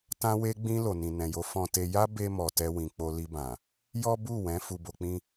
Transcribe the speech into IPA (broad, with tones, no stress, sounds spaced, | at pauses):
t ã˧ w e˧ ɡ͡b ĩ˧ l o˨ n ĩ˨ n ɛ̃˨ j o˨˦ f ɔ̃˧ t e˧ j a˦ b e˧ m ɔ˨ t ɛ˧ w ĩ˧ k͡p o˦ l i˧ b ã˨ | j ɔ˦ b u˦˨ w ɛ̃˨˦ f u˧ b o˧ k͡p ĩ˦